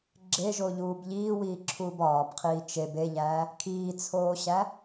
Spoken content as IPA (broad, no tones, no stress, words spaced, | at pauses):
ɡ͡ǁeʒoʎuːb ʎiːwiːǁʰuːb ɒːbqʰiː t͡ʃeb eʎæː | kʰiːt͡sʰoːɕæ